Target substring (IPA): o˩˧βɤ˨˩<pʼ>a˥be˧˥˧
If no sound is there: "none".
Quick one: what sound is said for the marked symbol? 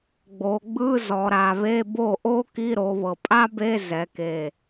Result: pʼ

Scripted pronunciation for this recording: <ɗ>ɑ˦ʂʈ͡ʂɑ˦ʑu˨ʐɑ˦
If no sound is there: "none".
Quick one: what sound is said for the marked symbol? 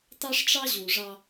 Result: t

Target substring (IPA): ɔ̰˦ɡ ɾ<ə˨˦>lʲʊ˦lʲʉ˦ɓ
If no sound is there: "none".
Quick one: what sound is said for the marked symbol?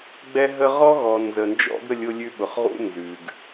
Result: ə˦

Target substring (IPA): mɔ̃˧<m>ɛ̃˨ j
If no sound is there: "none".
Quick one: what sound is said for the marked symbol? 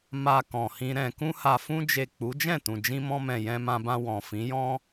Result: m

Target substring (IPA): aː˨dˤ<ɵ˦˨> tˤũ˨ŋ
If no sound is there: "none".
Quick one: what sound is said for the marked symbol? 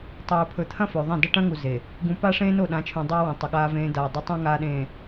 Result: ɵ˦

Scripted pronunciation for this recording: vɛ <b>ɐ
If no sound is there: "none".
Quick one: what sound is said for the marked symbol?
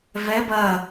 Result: b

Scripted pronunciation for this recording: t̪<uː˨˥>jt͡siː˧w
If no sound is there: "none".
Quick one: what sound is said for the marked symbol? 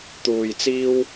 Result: uː˨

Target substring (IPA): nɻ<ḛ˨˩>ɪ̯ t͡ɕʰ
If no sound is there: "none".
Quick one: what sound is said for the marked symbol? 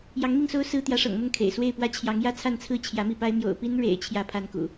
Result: ḛ˨˩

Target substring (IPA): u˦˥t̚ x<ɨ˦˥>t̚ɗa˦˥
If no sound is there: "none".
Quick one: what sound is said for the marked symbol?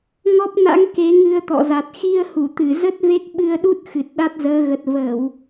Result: ɨ˨˩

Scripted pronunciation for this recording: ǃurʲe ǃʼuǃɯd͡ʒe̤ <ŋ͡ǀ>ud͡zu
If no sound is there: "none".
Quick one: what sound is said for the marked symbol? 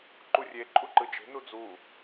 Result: n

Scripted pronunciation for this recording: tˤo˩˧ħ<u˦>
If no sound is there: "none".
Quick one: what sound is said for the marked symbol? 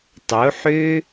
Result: ø˦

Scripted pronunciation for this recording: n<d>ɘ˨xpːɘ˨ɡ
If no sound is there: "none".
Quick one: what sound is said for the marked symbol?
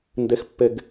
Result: d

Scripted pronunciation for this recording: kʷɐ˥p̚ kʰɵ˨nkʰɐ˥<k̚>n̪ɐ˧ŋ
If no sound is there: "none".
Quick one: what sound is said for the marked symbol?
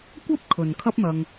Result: p̚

